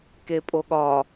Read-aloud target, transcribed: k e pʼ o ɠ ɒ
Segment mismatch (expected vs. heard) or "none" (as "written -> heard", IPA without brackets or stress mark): none